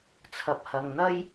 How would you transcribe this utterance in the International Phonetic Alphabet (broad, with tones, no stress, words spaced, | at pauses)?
t͡sʰɐ˨p̚hɐ˨ŋn̪ɐ˥j